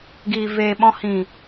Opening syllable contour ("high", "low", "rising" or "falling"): low